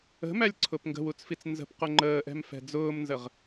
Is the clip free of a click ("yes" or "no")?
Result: no